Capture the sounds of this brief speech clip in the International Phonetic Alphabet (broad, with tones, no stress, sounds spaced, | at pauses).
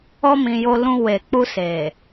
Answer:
ɔ˧ m ĩ˨ j o˧ l ũ˧ w e˨ k͡p u˧ s e˨